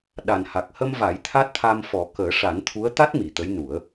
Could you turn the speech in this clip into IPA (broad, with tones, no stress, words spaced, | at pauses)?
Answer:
ɗa˨˩nha˨˩k̚hə˧mva˨˩˦j t̪ʰa˦˥t̚t̪ʰa˧mfɔ˨˩˦ kəː˨˩˦ʂa˨˩˦nt̪ʰu˧˥ə̯t̪a˦˥t̚ mi˨˩˨t̪ə˧˥jnu˨˩˦ə̯